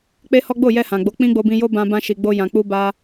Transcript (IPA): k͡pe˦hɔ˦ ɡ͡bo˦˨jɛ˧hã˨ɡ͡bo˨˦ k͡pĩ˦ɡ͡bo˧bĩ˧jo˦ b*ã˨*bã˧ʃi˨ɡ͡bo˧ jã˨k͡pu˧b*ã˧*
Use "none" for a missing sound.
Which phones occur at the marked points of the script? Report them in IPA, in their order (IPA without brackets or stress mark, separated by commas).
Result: ã˧, a˧